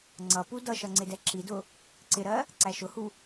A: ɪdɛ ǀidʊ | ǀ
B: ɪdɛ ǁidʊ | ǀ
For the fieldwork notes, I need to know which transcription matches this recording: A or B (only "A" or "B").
B